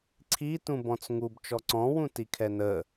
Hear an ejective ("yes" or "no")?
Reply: no